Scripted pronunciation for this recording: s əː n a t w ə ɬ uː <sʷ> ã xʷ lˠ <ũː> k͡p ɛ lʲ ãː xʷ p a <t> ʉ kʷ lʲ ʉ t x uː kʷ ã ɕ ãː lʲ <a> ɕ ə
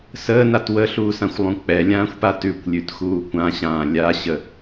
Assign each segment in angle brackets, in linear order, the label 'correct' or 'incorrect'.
incorrect: s, incorrect: ũ, correct, correct

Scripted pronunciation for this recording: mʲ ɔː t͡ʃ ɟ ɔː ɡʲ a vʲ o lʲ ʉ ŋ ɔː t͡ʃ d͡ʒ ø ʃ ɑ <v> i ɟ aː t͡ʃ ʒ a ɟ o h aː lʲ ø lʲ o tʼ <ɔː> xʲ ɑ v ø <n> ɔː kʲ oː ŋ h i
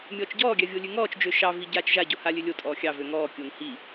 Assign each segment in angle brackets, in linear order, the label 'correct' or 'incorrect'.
correct, correct, incorrect: ŋ

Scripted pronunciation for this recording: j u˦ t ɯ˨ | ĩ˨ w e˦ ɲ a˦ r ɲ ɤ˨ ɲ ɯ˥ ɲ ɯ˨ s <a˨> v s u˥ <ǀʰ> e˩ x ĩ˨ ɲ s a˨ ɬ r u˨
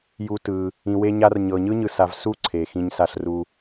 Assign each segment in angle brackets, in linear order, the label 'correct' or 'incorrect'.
correct, correct

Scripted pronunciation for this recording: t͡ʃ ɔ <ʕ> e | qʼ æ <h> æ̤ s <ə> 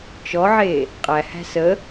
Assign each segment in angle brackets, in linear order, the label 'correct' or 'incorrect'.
correct, correct, correct

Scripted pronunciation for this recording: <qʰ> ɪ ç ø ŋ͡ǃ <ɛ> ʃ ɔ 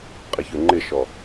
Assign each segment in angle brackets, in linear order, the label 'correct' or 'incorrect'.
incorrect: qʼ, incorrect: ɪ

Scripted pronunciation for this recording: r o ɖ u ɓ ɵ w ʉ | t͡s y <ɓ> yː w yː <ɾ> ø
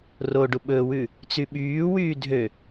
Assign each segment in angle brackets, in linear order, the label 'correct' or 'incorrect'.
correct, incorrect: dʱ

